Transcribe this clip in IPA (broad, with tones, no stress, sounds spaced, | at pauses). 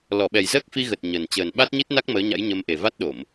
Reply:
l ɔ˧˩ ɓ ɛ˨˩ j z əː˦˥ k̚ f i˧ ɣ ə˨˩ t̚ ɲ ə˨˩ n t͡ɕ əː˨˩ n ɓ a˦˥ t̚ ɲ i˦˥ t̚ n a˦˥ k̚ m əː˨˦ ɲ a̰˧˥ j ɲ ə˧ m ʔ e˨˩ v a˦˥ t̚ ɗ o˧˩˨ m